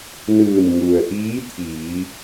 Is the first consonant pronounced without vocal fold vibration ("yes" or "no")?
no